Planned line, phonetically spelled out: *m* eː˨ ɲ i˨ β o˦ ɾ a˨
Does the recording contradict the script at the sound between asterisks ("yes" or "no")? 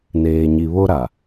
yes